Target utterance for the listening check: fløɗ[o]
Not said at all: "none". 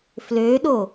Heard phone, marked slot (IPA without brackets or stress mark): o